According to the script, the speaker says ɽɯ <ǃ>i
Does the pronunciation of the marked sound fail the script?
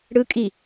yes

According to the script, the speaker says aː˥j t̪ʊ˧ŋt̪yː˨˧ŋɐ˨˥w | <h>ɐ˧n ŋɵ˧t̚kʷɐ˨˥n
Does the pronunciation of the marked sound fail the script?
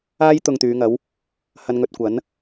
no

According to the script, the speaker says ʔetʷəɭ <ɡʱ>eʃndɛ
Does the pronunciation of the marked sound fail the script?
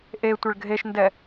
no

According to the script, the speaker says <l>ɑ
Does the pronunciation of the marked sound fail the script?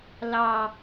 no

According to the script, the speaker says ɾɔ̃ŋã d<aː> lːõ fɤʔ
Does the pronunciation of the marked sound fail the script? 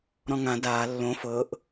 no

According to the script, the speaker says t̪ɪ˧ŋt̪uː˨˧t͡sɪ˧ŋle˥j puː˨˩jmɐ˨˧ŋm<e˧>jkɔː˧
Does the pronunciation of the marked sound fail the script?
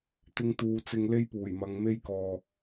yes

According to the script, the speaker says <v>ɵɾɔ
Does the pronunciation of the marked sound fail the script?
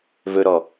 no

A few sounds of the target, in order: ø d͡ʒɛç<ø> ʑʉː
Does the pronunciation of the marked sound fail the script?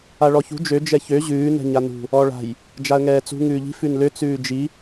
no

